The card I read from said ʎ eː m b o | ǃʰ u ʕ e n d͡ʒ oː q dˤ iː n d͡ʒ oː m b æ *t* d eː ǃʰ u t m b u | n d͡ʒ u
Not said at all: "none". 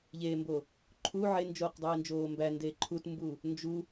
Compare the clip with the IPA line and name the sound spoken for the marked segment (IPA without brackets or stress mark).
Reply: n